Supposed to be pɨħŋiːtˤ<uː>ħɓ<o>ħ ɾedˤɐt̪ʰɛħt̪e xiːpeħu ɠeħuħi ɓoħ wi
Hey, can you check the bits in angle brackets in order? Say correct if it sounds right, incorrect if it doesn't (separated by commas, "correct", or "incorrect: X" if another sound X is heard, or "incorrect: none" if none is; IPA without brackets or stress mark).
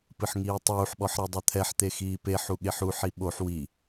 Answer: correct, incorrect: ɔ